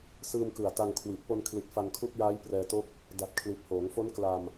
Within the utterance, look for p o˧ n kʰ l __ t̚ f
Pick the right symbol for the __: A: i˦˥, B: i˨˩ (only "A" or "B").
B